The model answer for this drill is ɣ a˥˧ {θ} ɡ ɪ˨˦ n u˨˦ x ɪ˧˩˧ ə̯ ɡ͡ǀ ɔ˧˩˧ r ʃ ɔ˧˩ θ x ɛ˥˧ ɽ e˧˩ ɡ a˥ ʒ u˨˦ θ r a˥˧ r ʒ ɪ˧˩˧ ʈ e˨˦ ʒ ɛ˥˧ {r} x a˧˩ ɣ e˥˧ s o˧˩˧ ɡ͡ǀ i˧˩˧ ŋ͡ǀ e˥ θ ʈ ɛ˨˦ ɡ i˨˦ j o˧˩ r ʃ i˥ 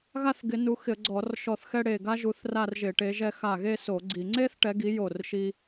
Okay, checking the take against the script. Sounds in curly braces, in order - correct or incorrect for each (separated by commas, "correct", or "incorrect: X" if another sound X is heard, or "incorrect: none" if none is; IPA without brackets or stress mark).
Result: correct, incorrect: none